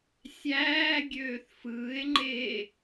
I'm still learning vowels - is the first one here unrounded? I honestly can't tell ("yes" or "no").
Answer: yes